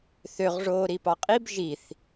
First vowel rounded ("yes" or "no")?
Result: yes